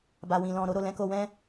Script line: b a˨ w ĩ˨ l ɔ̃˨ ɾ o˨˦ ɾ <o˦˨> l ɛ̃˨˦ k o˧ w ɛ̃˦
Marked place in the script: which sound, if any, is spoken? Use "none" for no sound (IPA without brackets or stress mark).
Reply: o˦˨